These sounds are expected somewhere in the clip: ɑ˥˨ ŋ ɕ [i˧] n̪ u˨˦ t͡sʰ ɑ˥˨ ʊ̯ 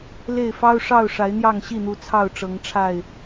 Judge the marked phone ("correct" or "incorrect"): incorrect